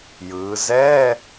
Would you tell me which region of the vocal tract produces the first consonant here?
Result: palate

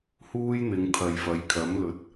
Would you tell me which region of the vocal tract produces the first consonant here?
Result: throat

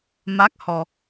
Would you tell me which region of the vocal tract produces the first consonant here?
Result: lips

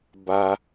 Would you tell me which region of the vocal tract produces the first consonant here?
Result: lips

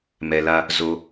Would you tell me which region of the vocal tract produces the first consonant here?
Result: lips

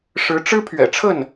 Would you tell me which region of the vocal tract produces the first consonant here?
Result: retroflex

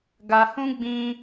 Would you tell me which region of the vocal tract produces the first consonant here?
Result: velum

